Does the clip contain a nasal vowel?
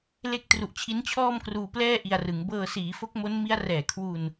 no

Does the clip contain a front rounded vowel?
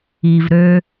yes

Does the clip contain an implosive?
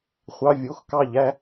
no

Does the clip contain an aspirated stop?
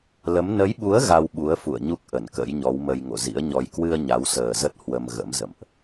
no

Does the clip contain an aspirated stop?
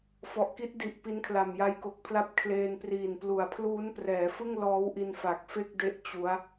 yes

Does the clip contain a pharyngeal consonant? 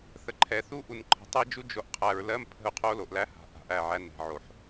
yes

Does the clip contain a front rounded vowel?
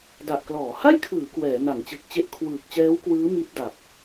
no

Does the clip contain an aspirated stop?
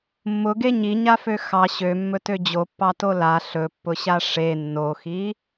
no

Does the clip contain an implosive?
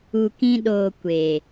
yes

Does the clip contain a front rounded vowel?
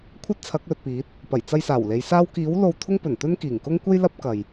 no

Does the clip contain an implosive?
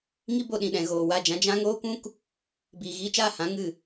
yes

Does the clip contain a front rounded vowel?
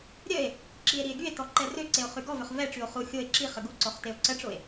yes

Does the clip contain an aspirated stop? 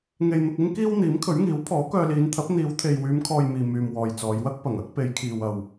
yes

